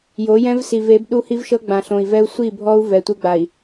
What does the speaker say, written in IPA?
jo˨˦jɛ̃˦vsi˨v e˨˦bɗu˦hi˦vʃɤ˦ ɡ͡bã˨ɬõ˨i̯vɛ˦u̯ sʷi˦˨bʱɔ˦u̯ vɛ˨ tʷɯ˦ɡ͡ba˨i̯

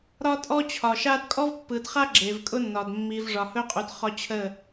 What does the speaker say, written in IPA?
ɾɒ˦tʼɔ˦t͡ɕʰɒ˨ʃa˦d kʼɔ˦vpːɯ˨dχa˦ ɡ͡ǁe˨vkʼʊ˦nːɒ˨d mːi˨vʐɒ˨hɵ˦qʼu˨d χɒ˦t͡ɕʰə˦˨

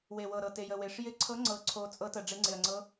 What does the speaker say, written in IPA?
we˨˩wɤ˨˩ɾɤ˨˩ te˨˩jə˨˩we˨˩ʂ jɪ˧˥ǀʰɤ˧˥ ŋ͡ǀɤ˧˥ǀʰo˧˥ t͡sʼɤ˧˥tə˨˩ ɖ͡ʐe˧˥ŋ͡ǀɪ˨˩ɐ̯ŋ͡ǀɤ˧˥

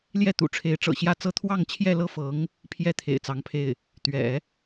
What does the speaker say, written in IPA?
ljɛ˥˩t̪ṵ˨˩ʈ͡ʂʰe˧˥ɪ̯ ʈ͡ʂɤ̰˨˩ɕjä˥˩t͡sɤ˥ t̪ʰwɑ˥˧ŋt͡ɕʰjɛ˥˧lɤ˥˩fɤ˧˥ŋ | pʰjɛ˥˩ t̪ʰḛ˨˩ɪ̯t͡sɑ˧˥ŋpʰe˥˩ɪ̯ | t̪ɥɛ̰˨˩˦

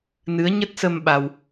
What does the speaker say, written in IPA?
nɨ˨˦ə̯ɲə˦˥t̚sə˧m ɓa˧w

